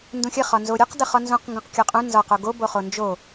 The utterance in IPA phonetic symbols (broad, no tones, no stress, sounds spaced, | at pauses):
n d ũ xʲ ə χ ɒ n z o ɾʲ ʉ q d ə χ ɒ n z ũ q ŋ ɡ ũ q kʲ o qʼ ũ n z ɒ q o ɡ o b o χ o n d͡ʒ o